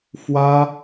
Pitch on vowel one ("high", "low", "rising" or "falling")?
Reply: high